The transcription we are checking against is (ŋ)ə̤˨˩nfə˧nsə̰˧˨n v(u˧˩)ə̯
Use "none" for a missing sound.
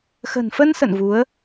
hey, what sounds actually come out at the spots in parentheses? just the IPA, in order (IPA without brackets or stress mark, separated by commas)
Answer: x, u˨˦